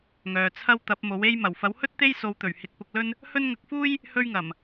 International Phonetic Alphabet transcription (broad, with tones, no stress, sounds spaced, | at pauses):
ŋ œː˨ t͡sʰ ɐ˥ w t̪ ɐ˨˥ p̚ m o˨˥ w e˥ j m ɐ˨˩ w f ɐ˨˥ w h ɵ˥ t̚ t̪ e˥ j s o˧ w t̪ ɵ˨˩ ɥ h ɪ˨ k̚ p ʊ˧ k̚ l ɵ˥ n | h ɵ˥ n ŋ ɐ˧ k̚ f uː˥ j | h ɵ˥ ɥ ŋ ɐ˨˩ m